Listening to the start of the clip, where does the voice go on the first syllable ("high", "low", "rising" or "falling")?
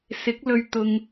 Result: rising